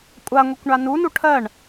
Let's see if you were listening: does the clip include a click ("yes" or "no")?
no